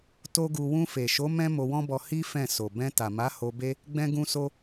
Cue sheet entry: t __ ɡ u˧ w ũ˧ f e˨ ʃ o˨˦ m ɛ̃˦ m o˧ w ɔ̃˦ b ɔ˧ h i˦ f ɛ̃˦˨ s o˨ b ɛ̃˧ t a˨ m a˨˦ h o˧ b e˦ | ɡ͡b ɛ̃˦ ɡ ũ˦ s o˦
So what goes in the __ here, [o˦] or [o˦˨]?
o˦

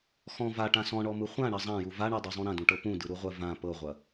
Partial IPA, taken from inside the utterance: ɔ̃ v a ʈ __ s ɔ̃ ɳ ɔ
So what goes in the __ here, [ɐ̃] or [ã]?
ã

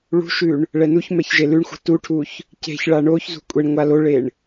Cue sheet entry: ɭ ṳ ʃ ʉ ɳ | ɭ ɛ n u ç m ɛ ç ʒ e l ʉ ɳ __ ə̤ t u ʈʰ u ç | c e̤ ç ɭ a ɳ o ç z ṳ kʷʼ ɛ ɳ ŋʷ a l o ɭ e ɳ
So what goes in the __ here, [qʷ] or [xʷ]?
xʷ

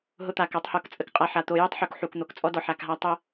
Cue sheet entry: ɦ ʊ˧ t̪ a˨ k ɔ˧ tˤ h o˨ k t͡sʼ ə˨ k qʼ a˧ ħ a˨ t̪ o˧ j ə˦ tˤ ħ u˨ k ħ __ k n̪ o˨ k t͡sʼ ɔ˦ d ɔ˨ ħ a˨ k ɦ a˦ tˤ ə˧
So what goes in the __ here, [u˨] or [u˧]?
u˨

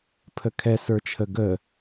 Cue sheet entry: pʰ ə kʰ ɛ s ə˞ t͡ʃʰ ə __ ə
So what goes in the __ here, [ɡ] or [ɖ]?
ɡ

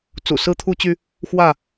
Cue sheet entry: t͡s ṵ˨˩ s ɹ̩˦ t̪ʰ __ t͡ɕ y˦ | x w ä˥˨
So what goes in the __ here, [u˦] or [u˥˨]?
u˦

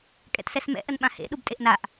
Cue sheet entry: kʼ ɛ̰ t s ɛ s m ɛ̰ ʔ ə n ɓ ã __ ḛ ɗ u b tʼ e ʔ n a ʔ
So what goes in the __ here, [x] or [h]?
h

